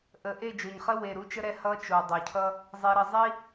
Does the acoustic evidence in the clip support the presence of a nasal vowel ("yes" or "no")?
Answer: no